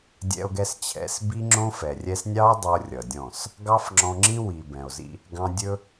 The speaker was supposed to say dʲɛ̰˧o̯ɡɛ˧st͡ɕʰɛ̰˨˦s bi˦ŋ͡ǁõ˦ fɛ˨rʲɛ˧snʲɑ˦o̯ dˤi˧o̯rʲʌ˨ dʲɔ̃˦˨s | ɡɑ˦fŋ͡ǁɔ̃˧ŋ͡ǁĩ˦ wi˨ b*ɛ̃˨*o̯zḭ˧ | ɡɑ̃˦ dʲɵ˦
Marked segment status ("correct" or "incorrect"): correct